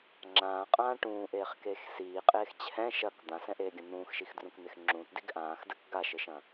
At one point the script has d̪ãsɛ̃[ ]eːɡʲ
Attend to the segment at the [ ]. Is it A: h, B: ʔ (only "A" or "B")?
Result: B